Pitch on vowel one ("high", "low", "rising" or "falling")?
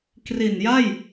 low